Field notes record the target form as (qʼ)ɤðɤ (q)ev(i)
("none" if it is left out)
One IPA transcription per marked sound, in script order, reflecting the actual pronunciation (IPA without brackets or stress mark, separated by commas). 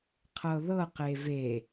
qʰ, q, e